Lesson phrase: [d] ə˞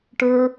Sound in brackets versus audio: incorrect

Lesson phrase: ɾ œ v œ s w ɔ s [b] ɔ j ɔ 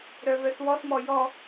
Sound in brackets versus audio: incorrect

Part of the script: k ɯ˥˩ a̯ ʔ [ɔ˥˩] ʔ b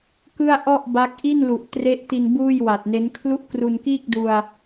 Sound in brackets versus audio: correct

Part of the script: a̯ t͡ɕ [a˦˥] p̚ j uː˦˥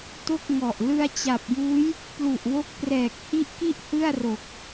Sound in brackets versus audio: incorrect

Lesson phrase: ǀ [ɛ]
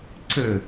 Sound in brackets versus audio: incorrect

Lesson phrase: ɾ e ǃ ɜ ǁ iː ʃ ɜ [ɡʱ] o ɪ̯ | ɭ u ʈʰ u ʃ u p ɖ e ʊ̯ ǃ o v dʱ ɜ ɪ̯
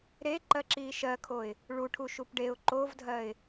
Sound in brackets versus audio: incorrect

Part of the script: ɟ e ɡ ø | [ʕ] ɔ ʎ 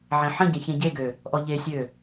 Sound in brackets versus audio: incorrect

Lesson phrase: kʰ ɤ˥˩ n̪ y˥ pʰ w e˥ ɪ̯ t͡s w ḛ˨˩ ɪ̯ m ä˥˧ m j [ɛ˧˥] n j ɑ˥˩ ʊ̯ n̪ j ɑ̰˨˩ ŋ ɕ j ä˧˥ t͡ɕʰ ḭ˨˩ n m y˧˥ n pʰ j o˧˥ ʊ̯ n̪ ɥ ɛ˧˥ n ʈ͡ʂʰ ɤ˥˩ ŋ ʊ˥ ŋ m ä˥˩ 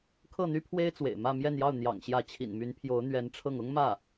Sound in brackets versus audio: incorrect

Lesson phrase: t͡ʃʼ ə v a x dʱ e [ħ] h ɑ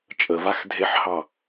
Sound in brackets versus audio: correct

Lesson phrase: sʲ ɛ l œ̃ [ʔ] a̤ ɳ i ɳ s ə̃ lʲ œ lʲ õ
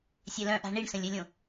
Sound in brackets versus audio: correct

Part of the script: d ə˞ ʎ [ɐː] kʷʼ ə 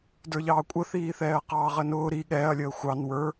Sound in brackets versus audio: incorrect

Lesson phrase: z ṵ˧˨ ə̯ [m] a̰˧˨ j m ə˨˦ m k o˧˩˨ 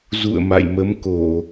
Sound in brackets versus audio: correct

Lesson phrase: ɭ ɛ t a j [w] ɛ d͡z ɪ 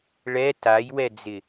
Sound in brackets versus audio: correct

